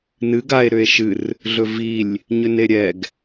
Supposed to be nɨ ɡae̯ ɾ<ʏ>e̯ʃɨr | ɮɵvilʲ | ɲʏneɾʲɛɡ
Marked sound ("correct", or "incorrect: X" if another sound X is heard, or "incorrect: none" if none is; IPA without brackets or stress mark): correct